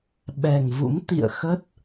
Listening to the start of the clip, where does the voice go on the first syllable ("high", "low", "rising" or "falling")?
low